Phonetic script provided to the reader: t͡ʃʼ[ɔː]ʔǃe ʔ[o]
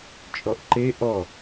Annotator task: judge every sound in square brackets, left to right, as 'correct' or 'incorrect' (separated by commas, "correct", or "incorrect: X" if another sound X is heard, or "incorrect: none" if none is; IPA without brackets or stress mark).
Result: incorrect: ɔ, incorrect: ɔ